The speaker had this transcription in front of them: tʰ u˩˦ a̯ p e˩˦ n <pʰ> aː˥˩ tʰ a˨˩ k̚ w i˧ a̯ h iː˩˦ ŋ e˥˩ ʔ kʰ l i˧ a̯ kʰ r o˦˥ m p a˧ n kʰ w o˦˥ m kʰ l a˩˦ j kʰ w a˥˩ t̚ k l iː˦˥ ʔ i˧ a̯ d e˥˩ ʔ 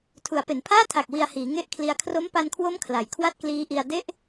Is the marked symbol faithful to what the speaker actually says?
yes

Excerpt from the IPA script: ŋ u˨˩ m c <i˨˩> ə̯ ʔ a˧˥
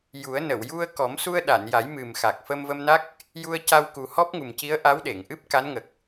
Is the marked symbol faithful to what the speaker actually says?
no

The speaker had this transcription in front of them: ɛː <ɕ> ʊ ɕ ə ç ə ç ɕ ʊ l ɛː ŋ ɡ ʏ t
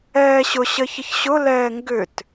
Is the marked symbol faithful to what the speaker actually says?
yes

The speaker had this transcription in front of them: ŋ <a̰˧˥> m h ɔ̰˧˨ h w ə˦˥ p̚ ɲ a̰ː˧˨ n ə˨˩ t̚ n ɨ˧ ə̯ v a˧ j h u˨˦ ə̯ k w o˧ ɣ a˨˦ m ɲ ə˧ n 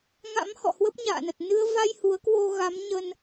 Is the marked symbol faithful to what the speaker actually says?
yes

